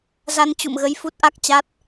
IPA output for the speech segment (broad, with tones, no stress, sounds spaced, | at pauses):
z a˧ n t͡ɕ ṵ˧˨ m ɣ ə˧ j f u˦˥ t̚ ʔ a˦˥ k̚ t͡ɕ a˦˥ t̚